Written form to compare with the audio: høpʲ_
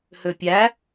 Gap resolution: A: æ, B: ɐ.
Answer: A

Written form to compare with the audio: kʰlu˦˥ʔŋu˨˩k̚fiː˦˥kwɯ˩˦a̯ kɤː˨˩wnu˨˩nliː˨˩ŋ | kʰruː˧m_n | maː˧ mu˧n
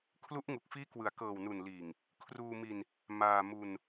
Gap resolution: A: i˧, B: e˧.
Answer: A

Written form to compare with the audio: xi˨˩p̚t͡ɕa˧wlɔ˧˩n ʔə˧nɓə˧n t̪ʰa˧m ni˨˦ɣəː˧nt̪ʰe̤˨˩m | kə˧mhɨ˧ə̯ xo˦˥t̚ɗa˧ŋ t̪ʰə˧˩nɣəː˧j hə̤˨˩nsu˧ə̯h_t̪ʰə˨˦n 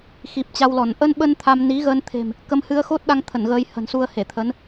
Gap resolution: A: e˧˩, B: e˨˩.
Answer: A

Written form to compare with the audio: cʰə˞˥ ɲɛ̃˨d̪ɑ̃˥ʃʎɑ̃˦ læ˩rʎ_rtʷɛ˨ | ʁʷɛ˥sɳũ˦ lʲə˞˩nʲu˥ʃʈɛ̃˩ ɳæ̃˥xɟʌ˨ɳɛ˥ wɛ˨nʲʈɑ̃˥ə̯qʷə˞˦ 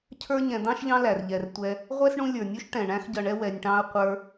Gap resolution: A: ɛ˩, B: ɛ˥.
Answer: A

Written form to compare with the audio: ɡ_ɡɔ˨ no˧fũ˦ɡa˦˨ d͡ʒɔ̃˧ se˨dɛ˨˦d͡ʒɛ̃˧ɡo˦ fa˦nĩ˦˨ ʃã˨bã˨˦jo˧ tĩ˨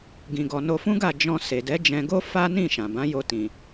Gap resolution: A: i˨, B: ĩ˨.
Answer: B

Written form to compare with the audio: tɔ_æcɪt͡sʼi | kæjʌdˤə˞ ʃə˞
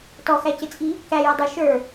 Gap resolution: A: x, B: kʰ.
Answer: A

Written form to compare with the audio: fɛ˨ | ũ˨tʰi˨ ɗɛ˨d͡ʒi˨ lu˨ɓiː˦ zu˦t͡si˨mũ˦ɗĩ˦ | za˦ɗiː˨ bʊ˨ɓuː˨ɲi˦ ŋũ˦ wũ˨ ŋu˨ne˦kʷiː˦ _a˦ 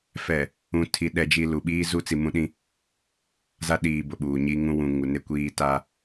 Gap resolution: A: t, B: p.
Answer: A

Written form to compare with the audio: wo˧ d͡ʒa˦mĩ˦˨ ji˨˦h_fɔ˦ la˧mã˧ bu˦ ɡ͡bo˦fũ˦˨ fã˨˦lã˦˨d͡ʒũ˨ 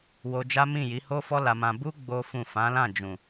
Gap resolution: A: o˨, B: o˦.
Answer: B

